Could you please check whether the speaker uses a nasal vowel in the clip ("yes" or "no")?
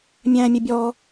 yes